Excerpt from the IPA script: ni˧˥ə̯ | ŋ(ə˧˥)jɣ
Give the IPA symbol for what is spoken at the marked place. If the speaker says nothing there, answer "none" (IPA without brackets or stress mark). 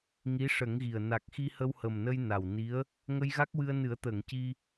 ə˧